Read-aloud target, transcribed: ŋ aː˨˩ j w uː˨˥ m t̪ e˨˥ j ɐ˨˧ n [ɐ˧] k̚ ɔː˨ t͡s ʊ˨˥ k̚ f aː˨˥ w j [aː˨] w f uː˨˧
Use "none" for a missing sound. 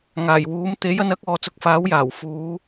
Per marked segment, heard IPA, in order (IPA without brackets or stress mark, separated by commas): ɐ˨˥, aː˨˩